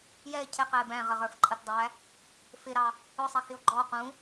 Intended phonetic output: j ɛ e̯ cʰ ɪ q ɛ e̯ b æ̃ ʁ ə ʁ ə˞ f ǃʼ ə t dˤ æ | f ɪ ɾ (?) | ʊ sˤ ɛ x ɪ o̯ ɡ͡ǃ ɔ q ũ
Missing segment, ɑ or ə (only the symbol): ɑ